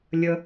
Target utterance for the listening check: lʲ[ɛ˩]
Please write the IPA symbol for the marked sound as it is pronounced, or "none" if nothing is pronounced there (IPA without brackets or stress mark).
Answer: ə˩